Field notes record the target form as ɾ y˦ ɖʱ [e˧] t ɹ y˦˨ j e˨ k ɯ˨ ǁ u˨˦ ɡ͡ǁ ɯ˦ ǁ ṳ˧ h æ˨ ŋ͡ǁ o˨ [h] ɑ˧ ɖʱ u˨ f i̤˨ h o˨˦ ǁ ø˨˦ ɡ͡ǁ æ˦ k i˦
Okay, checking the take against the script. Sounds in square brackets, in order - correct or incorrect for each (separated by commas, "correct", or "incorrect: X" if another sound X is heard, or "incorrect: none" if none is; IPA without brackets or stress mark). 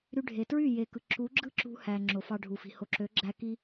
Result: incorrect: e˨, incorrect: f